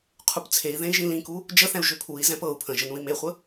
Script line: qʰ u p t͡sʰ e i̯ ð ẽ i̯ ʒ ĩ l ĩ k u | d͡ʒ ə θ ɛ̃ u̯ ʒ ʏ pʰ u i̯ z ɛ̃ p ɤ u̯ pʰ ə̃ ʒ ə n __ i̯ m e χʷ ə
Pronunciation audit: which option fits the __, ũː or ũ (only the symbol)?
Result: ũ